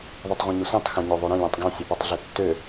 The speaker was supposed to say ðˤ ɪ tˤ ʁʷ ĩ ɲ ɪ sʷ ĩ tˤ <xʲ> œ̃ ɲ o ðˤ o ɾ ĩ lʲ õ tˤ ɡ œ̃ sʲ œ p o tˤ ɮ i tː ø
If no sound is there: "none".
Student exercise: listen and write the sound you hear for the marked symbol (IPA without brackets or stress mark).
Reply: x